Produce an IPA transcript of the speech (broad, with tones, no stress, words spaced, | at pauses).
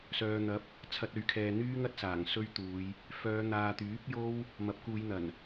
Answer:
sœː˨n̪ɐ˨˥p̚ | t͡sʰɐ˧t̚ɵ˨˧ɥkʰɛː˨ n̪yː˥ŋɐ˥t̚saː˨˩ŋ sɵ˥ɥt̪uː˨˧j | fœː˨˧ n̪aː˨t̪yː˨˥p̚ jo˥w | mɐ˨˥p̚kuː˨˧jn̪ɐ˨˩n